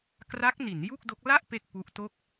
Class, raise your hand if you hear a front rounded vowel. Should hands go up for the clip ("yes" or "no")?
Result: no